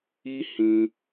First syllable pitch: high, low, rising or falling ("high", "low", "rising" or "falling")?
high